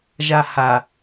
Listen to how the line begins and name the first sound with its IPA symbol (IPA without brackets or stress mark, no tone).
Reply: ʒ